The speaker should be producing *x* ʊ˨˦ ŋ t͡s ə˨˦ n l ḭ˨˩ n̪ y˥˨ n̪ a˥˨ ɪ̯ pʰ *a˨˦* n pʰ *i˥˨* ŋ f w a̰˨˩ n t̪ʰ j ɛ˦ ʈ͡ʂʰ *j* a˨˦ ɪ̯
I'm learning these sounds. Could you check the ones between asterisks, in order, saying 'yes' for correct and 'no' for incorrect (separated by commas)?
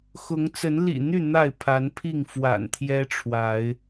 yes, yes, yes, no